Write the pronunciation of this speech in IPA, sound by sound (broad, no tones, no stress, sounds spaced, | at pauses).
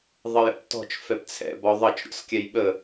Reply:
ðˤ ə j ə̰ p t ɔ̤ t͡ʃ f ɛ p t͡sʰ ɛ̰ b ɔ ðˤ ʌ t͡ʃ ɾʲ ɔ̰ s kʲ ɛ j ɓ ə